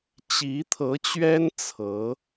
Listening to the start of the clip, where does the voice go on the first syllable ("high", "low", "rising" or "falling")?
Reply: rising